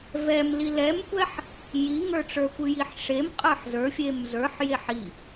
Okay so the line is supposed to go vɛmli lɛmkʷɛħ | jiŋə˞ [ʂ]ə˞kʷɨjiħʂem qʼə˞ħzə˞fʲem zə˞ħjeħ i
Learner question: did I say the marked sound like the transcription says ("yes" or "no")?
no